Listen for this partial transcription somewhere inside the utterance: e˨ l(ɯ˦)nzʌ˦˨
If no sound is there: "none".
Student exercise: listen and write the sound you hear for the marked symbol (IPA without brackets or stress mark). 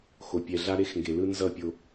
ɯ˦